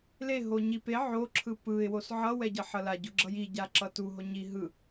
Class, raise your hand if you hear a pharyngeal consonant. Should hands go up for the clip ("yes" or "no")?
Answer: yes